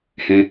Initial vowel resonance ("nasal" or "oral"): nasal